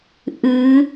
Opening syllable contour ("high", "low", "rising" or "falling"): rising